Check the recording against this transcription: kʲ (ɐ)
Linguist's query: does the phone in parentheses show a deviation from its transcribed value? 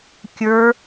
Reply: yes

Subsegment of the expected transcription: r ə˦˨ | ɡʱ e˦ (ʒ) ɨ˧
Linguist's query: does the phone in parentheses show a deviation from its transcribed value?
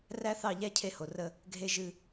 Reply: no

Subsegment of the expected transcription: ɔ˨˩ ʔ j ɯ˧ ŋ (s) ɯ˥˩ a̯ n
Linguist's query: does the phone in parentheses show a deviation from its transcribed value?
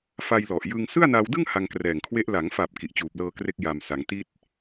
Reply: no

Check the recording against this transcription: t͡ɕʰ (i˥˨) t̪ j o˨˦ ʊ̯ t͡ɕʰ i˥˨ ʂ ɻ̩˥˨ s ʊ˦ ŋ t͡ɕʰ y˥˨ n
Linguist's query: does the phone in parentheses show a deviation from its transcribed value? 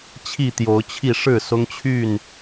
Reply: no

